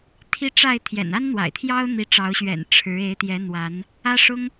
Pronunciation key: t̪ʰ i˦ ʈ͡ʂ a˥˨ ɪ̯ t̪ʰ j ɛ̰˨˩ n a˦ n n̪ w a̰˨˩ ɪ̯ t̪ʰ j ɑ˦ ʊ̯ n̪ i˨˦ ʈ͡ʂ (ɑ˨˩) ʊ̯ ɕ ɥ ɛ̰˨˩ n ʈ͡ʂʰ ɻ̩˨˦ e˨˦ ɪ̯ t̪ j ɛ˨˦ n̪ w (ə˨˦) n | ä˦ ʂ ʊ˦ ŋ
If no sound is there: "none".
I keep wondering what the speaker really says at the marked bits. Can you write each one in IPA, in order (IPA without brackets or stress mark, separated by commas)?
ɑ˨˦, a˨˦